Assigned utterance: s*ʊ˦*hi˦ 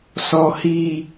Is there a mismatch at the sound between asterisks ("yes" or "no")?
yes